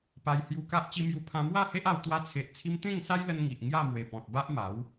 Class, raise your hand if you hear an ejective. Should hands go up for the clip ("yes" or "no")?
no